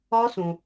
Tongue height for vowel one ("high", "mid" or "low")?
low